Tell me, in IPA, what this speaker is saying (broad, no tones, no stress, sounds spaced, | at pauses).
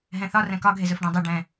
ɦ ɛ̃ θ ɒ r ɛ̃ k ɒ ɡʱ e z ɵ f ɖ ɛ̃ dˤ ɵ ɖ ɛ̃